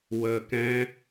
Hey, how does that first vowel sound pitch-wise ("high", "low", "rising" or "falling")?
low